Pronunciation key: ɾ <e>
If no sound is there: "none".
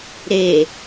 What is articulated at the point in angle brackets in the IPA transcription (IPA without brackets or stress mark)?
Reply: e